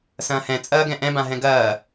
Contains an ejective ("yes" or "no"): yes